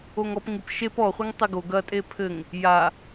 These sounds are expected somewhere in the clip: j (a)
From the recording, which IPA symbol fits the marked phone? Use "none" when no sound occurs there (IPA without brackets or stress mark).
a